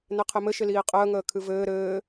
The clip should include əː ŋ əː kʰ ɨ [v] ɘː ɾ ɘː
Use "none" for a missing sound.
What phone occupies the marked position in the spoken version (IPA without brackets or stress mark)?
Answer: v